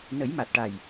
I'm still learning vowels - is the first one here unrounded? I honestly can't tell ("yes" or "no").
yes